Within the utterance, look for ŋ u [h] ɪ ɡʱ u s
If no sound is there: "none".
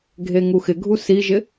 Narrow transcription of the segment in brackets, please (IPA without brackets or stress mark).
x